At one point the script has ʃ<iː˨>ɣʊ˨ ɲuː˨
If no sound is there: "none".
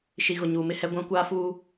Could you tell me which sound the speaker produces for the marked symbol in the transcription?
i˨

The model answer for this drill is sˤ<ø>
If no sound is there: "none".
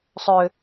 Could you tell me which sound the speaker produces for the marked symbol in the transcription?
ø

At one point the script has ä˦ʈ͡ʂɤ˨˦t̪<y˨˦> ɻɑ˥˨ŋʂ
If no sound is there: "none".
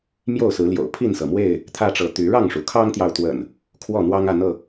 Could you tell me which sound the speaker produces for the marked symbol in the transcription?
y˨˦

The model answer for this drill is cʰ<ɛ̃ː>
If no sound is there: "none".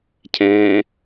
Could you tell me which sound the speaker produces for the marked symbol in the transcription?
ɛ̃ː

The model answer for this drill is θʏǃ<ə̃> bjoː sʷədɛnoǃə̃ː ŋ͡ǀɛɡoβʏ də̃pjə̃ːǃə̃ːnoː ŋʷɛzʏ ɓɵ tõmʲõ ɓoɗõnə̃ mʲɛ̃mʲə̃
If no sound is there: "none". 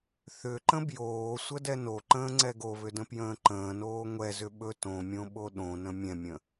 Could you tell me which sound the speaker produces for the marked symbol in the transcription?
ə̃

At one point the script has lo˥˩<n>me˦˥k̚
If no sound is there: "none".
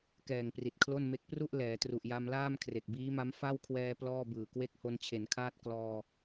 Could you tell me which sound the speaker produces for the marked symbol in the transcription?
n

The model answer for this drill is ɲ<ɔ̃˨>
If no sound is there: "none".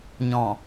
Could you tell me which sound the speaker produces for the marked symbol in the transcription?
ɔ̃˨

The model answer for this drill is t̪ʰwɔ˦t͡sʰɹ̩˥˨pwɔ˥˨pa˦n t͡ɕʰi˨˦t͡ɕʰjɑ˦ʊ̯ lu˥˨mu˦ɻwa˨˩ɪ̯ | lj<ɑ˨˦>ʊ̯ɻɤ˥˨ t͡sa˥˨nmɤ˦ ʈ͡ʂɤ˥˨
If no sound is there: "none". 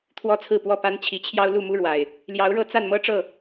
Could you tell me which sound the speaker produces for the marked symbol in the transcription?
ɑ˨˦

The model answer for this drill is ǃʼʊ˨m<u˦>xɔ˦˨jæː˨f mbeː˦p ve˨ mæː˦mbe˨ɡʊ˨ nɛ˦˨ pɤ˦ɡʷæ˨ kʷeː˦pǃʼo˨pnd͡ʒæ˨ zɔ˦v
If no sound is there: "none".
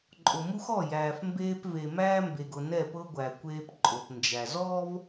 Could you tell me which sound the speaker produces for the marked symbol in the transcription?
u˦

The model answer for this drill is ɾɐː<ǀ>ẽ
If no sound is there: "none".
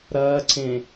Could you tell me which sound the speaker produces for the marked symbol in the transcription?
ǀ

